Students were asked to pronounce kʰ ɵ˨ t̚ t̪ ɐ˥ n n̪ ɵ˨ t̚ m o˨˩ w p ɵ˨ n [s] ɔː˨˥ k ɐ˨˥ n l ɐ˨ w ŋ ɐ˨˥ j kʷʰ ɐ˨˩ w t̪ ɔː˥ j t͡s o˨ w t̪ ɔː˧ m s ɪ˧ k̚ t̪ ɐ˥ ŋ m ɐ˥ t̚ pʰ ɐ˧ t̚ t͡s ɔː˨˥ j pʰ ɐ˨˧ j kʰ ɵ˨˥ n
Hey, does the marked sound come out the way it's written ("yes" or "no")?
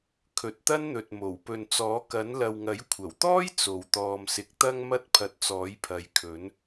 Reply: no